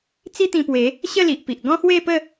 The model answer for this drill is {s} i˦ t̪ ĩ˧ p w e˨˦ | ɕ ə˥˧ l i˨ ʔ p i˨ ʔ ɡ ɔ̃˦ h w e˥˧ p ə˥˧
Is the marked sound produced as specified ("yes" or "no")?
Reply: no